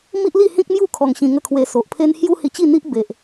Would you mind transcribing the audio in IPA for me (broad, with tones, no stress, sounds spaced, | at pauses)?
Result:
m i˦ ʔ l i˥˧ h ĩ˦ k̚ m j u˥˧ kʰ ɔ˧ ŋ ɕ ĩ˧ ŋ ə˥˧ kʰ w e˧ s o˨ ʔ pʰ e˦ n h j u˦ h i˧ t͡ɕ i˥˧ n̪ i˦ ʔ b e˨ ʔ